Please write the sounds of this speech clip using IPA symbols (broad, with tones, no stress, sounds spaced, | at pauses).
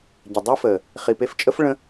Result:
ɟ ə˨ dˤ i˦ f əː˨ | χ i˨ p e˧ f t͡ʃʼ ə˦ f ɭ ə̃˦